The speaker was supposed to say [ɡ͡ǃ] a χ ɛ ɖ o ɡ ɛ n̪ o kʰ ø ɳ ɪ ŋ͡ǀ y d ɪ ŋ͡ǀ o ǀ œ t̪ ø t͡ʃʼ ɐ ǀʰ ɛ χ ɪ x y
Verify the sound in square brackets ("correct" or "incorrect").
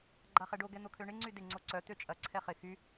correct